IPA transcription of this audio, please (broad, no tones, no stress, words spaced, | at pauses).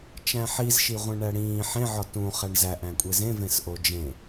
t͡ʃæ̃ħizʃi ʁʷẽɳæɽĩː ħẽʕɒ tũχæɳ zæʔæ̃kʷʼe zẽ vẽsʔod͡ʒẽ